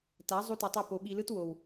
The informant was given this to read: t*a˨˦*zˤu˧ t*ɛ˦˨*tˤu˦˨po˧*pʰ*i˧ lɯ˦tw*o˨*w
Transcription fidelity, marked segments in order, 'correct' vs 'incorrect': correct, incorrect, incorrect, correct

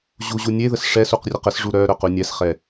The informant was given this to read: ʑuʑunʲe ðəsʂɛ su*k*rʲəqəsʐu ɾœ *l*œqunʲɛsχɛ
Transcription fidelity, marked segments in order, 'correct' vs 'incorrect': incorrect, incorrect

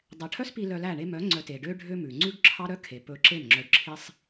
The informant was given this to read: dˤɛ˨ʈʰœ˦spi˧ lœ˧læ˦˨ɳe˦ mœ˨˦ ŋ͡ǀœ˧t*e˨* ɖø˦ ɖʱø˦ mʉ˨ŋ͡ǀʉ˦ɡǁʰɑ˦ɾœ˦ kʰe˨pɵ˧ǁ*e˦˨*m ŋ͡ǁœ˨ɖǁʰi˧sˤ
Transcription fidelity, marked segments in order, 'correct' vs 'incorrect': correct, correct

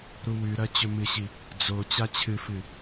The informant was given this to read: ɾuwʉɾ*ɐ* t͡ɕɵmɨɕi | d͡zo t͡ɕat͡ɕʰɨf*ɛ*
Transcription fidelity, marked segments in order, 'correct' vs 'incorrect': correct, incorrect

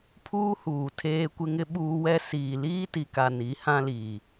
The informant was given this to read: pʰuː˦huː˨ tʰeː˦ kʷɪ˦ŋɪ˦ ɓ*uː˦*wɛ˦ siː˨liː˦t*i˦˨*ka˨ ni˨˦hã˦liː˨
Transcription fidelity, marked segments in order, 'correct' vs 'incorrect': correct, incorrect

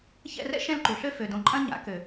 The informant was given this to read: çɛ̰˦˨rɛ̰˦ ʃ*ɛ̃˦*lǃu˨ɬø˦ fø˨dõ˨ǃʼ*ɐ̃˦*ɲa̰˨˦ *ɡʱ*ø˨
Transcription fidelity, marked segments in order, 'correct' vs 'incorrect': correct, correct, incorrect

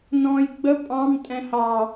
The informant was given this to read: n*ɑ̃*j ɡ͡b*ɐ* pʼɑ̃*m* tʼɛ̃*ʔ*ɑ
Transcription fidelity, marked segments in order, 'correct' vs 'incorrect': incorrect, incorrect, correct, incorrect

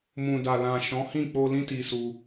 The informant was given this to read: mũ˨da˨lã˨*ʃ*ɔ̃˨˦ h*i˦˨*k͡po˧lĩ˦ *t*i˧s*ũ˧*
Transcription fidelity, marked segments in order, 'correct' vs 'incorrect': correct, incorrect, correct, incorrect

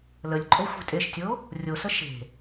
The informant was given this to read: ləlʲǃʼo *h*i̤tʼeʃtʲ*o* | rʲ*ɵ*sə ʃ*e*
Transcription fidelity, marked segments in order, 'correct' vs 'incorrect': incorrect, correct, incorrect, incorrect

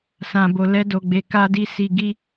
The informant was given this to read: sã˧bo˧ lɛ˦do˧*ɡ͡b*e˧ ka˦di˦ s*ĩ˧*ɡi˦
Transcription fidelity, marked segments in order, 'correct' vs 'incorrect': correct, incorrect

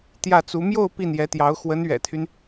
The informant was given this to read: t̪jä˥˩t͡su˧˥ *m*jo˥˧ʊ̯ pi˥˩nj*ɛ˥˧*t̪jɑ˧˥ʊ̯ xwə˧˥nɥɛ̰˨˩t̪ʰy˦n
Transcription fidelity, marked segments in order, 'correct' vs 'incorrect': correct, incorrect

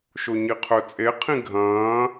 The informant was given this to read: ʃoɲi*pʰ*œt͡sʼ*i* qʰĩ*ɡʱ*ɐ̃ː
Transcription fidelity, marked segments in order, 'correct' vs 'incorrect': incorrect, incorrect, correct

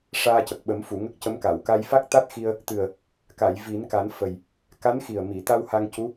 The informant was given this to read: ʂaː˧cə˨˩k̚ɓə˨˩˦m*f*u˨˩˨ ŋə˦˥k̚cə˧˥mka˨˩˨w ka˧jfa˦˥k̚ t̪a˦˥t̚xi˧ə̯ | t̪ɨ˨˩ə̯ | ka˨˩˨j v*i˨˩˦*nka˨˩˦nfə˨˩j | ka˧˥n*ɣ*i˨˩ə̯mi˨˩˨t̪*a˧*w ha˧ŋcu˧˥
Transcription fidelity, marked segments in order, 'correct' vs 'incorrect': correct, correct, incorrect, correct

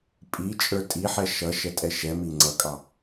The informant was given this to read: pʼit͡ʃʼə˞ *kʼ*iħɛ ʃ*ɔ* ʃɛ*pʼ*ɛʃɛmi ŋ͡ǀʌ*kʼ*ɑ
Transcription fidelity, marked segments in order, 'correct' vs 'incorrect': incorrect, incorrect, incorrect, correct

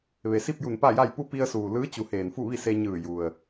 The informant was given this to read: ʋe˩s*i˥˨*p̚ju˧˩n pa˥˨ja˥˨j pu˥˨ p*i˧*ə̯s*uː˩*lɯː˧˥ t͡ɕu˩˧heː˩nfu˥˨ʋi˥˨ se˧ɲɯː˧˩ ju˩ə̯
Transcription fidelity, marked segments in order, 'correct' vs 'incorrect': correct, correct, correct

